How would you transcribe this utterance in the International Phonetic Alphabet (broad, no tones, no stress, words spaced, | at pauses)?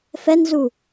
fɛnzu